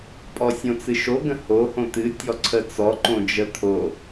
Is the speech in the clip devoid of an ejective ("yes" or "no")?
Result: no